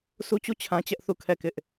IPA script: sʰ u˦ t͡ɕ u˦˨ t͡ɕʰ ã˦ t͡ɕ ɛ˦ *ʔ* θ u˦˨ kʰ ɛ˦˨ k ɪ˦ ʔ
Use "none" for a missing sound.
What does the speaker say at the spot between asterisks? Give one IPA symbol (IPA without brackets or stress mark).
ʔ